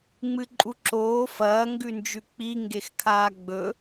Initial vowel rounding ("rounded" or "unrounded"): unrounded